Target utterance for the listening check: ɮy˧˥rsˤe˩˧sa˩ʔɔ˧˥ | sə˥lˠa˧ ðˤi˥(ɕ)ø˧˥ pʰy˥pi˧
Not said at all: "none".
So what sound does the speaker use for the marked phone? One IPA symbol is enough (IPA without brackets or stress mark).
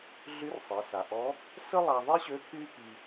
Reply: ɕ